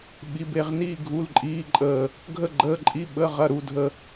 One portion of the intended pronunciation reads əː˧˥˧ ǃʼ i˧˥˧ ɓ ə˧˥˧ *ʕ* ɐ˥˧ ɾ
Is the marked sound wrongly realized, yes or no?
yes